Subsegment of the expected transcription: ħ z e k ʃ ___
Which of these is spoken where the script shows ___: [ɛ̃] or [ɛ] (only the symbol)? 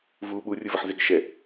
ɛ